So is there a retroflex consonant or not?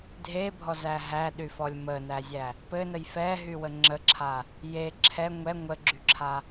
no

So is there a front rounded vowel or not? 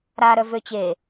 yes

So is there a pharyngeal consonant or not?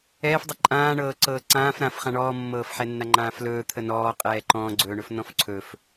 yes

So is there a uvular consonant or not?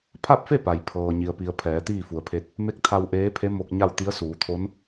no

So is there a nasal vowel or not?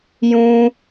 yes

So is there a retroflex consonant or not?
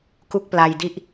no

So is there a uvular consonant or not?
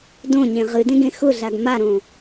yes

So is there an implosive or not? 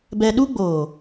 yes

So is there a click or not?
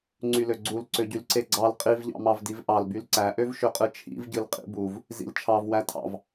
yes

